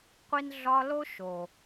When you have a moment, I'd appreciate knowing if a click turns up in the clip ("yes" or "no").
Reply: no